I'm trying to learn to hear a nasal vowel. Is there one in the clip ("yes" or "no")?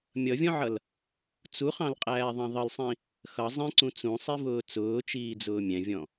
yes